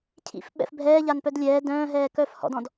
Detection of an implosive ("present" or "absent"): present